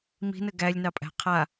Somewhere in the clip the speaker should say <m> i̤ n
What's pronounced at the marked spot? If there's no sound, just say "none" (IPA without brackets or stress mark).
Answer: m